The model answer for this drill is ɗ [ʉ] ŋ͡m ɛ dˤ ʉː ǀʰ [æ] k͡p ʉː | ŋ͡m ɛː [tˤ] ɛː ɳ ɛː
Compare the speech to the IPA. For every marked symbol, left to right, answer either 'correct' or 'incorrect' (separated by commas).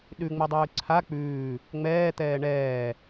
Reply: correct, incorrect, incorrect